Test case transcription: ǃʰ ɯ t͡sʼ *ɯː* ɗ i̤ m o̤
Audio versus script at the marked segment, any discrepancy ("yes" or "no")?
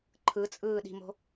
no